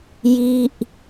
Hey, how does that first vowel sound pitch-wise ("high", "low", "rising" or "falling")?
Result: falling